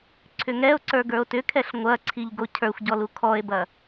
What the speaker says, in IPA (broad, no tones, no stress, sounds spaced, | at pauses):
ǀʰ ʏ ŋ ɛ o̯ ǀ ə˞ ɡ ə˞ o̯ t ʏ kʰ ɛ ɬ ŋʷ ɐ ǀʰ i ʎ ɡ o cʰ ə˞ xʷ ɟ ɔ l u kʰ ɔ e̯ b ɐ